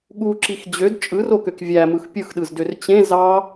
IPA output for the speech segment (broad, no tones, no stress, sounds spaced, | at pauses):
ɠ u ǁ i x d͡ʑ ø d t͡ʃʼ ɯ r o k ø k vʲ æ m ɯ x pʲ ɯ x ɗ ɯ z d ø r t͡ɕ ẽ z ɑ